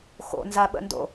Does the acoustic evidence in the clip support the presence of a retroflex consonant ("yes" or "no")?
no